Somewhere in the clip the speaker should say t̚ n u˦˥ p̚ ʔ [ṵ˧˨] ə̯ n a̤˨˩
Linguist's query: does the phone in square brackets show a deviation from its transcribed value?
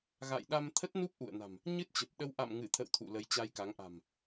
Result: no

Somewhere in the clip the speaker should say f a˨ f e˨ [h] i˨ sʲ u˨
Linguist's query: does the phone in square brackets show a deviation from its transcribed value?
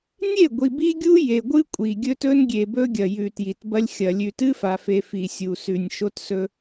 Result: yes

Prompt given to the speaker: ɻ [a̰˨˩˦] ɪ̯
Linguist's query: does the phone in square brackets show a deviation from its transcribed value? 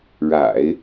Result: no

